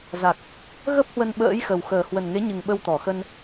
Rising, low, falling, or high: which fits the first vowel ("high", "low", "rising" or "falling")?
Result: low